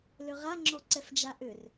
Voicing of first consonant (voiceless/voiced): voiced